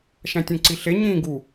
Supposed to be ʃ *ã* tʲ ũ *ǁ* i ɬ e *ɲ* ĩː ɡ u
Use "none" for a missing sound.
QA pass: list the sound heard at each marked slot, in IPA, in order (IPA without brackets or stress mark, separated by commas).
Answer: æ̃, ǀ, ɲ